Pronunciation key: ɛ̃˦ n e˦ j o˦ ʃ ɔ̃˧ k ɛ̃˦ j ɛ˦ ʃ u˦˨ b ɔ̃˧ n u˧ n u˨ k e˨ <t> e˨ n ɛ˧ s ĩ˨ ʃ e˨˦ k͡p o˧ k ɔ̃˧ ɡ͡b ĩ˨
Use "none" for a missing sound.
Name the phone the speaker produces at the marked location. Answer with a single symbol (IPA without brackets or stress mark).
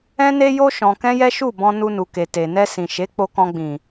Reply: t